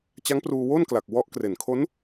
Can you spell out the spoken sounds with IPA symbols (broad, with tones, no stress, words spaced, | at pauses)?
t͡ɕa˦˥ŋpruː˧wo˥˩nkla˨˩k̚ wɔ˦˥ʔkre˨˩n kʰo˦˥n